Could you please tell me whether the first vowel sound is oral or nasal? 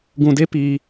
nasal